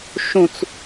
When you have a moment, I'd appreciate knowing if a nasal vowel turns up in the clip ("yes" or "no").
yes